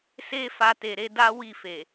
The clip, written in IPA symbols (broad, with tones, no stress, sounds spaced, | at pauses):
s e˦ f a˧ t e˨ ɾ e˨˦ d a˦ w i˦˨ f e˨